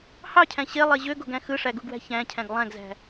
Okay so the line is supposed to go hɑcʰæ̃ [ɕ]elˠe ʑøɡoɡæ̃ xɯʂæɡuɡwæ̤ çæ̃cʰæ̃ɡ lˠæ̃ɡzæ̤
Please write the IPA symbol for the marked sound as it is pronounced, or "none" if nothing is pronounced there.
ɕ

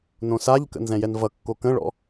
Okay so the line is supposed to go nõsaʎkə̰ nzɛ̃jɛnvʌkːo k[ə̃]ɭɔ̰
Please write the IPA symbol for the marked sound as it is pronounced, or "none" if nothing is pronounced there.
ə̃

